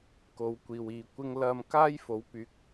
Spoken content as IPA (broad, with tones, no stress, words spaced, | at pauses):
ko˨˧w kʷiː˨wiː˨kʷɪ˥ŋ lɐ˧mkaː˥j fo˨˥wpyː˨˥k̚